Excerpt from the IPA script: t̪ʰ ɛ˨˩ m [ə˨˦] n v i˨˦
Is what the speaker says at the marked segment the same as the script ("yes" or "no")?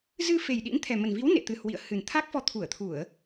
no